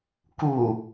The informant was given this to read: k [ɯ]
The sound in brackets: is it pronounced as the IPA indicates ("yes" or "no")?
no